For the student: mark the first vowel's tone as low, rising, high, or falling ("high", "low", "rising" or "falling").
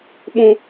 high